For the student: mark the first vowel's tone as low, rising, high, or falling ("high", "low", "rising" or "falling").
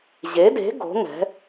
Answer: rising